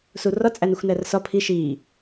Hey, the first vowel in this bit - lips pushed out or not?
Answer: yes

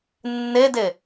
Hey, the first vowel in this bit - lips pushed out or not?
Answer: no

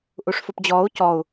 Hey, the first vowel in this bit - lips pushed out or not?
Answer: yes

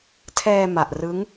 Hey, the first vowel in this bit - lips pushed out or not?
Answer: no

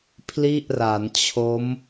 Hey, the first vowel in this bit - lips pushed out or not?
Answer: no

